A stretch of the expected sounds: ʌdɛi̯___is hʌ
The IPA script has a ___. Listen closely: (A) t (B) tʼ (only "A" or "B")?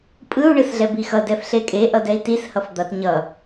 A